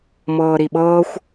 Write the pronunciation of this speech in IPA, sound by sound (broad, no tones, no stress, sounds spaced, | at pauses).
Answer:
m ɤː ɾ i ɓ ɤː xʷ